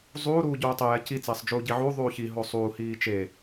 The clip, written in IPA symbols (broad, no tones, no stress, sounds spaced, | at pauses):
zˤ uː ɾ uː ɟ uː tˤ e j ɛ c i t͡s eː sˤ d͡ʒ uː ɟ i ʕ u ðˤ uː ç i ɦ o sˤ uː h iː t͡ʃ e